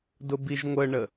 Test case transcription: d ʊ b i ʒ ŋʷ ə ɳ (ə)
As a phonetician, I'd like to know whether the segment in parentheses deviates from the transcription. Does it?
no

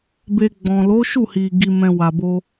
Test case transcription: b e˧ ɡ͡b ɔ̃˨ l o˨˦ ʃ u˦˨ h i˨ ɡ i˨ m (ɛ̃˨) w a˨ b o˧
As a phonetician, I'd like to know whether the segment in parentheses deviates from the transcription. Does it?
no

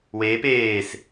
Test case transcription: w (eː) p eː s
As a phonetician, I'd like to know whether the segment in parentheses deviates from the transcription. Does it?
no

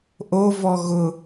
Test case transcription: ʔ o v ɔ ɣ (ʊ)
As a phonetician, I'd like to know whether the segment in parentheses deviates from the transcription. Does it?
no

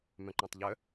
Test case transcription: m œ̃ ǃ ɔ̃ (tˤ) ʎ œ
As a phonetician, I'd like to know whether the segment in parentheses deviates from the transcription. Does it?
no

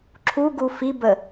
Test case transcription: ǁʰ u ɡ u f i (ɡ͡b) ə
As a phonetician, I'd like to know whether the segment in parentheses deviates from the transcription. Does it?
yes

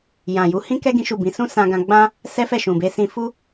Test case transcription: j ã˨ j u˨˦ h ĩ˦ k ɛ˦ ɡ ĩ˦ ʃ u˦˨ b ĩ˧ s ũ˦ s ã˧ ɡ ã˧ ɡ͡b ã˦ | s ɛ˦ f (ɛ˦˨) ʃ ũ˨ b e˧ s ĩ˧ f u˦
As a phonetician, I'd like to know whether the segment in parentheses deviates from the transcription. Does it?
no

